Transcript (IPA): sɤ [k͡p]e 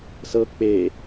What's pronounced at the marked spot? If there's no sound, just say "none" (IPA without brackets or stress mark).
k͡p